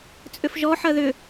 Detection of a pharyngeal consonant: present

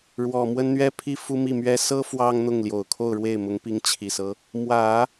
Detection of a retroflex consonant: present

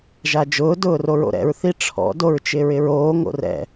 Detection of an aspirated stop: present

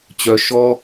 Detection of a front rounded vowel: present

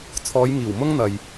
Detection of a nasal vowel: absent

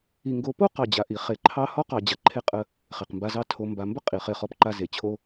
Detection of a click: present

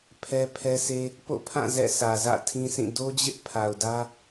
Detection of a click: absent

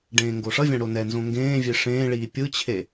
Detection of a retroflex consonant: present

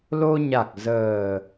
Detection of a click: absent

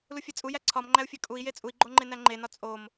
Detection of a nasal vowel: absent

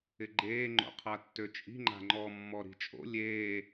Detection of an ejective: present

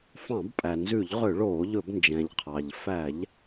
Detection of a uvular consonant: present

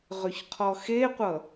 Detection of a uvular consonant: present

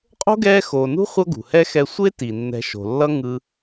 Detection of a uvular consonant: present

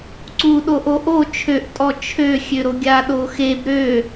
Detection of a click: present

